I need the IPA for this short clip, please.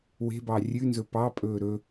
w e̤ b ɑ rʲ ʉ n z ɵ p ɑ pʼ ɵː ɾ ɵ

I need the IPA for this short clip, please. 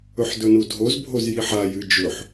ɵ ħ d ɵ n u dʱ o z bʱ o z j i ħ a j ɨ d͡ʒ ɵ ħ

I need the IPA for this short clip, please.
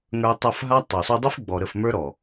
ŋ ə˞˧ tˤ ɐ˦˨ f ɦ a˦ tˤ ø˨ sˤ u˧ dˤ i˦ f ɡ͡b ɔ˨ ɾ ə˦˨ f m ə˞˦ ɾ ɔ˨

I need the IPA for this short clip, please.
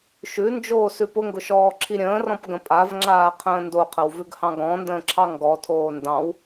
ʃ ʉ n d͡ʒ oː s ʉ p ʊ ŋ ɡ ʊ ʃ ɔː ǁʰ i ɾʲ ə̃ː r ɔ̃ p ɡ ə̃ pʼ a v ŋ͡ǁ aː qʰ ə̃ː n d o qʰ ə w v ʉ ɡ h ɑ̃ ɡ ɔ̃ n d ə̃ː ǁʰ ɑ ŋ ɡ ɔ tʰ oː n d ɑ̃ w

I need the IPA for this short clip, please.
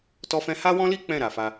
t ɔ˦ f ɛ̃˦ h a˦ w ɔ̃˦ l i˦ k͡p ɛ̃˦˨ ɾ a˨ f a˧

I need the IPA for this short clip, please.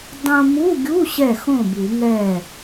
dˤ õ˧ m u˧˥˧ ɡʲ u˧˥˧ ɕ ɛ˥˩ x õ˥˩ b u˨˩˦ ŋ ɛ˥˩

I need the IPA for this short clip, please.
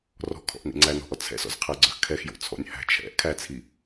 r ɔ̤ kʰ ɔ̰ ʔ n ḭ ŋ͡ǀ æ n ɔ̤ ʔ ɔ t͡sʰ ɛ̰ s ɔ̰ z qʰ æ ɡ͡ǀ œ x kʰ ɛ x j o̰ t͡sʰ ɔ̰ nʲ h æ̤ t͡ʃʰ ɛ̰ ʔ kʰ æ t͡sʰ i

